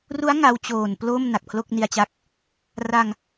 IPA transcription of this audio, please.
ru˦˥a̯ ŋa˦˥w t͡ɕoː˨˩nplo˥˩m na˨˩k̚pʰlo˥˩k̚ni˧a̯t͡ɕa˦˥k̚ | ra˧ŋ

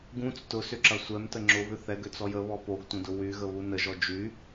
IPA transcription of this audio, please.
ɡũt͡s tʊsʏǁɐ sʷɛmtə ŋ͡ǁʊβʏ θɛɡøt͡sɔj əβɔ poɡtʷə̃dʊ wyɣəβu nəʒɔ d͡ʒy

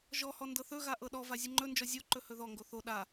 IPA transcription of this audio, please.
ʒɔhɔ ndɤθɵɣa ʔɤɗɔva zʲɨŋ͡ǃɵnd͡ʒɔ zʲoǃɵ hɵðɔŋɡo θo ɗa

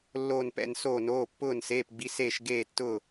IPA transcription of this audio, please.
lːoː˧˩npɛ̰˧˩n soː˧˩noː˩˧˩pːʊː˧˩n seː˩˧˩pɡ͡bi˩˧˩seː˧˩ʃ ɡeː˧˩tːʊː˧˩

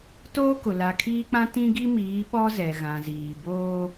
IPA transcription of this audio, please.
toː˦kʊ˨ la˨kʰiː˦k͡pã˦ tĩ˦ɡi˦miː˨˦ ɓɔ˦zɛ˨ɣã˨ziː˨ boː˦

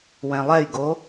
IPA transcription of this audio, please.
wɛ̃lˠɛjɡo

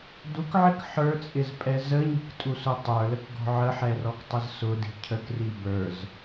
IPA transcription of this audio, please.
dukʕɪk ħə˞t͡sʼɪzpʼɛ zəɲi̤ktʼusʊ tˤə˞ləkɡɔ̤ ʕəħɛrɔktˤəz sʊdi̤ cʰəkri bə˞z

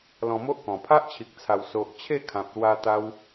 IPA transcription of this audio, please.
lɔ̃˧mo˦ʔkɔ̃˨˩ pʰa˦ʔt͡ɕʰi˨k̚t͡sʰa˨˩w so˨ʔ t͡ɕʰe˥˧kʰã˨p̚ lwa˧t̪a˧w

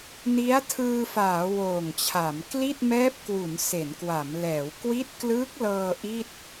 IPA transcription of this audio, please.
ni˦˥a̯tʰɯː˧faː˩˦ woː˨˩ŋt͡ɕʰa˩˦m kli˥˩t̚mɛː˦˥p̚kwu˩˦n se˩˦nkwa˩˦mlɛː˩˦w kwi˦˥t̚klɯː˦˥k̚lɤː˧ ʔi˥˩t̚

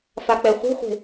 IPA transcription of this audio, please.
fak͡pɛχʷe̤χʷe̤

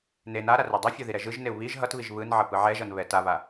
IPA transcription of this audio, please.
ne naɾa redˤifʲo ðiɾɛʒɯʒneu̯ βiʒ ɦʌtβiʒ βɯnʕʌ pɯʕɛʒʌn βɛtaβa

